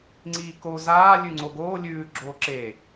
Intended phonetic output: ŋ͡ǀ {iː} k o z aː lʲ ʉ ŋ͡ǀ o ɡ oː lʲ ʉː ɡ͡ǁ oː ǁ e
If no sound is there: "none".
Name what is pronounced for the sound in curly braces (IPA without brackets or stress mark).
iː